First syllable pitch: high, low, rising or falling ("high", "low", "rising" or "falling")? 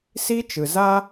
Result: high